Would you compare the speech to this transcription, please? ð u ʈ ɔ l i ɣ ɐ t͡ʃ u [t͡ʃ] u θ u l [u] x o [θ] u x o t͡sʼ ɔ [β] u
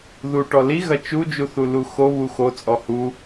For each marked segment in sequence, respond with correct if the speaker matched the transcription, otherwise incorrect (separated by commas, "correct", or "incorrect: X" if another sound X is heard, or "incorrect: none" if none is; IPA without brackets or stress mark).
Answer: incorrect: d͡ʒ, correct, incorrect: β, incorrect: h